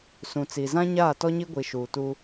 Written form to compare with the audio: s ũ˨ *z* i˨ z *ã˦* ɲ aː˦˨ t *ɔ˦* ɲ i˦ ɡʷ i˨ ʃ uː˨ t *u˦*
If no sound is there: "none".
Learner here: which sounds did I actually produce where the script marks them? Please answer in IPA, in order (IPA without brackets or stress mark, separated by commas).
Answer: t͡s, ã˦, ɔ˦, uː˦